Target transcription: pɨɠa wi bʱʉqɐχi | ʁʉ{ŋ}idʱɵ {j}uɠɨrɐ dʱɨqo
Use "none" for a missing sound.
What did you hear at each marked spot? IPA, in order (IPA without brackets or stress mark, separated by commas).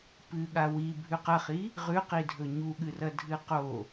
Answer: q, ɲ